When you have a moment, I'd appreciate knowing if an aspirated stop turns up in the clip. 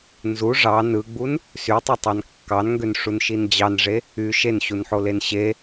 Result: no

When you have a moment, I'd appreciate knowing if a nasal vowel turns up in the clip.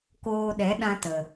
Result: yes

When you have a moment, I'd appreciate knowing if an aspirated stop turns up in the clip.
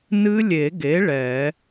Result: no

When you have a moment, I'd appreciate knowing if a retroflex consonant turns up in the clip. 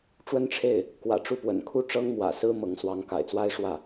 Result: yes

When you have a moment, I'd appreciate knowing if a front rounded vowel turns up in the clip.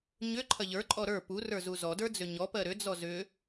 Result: yes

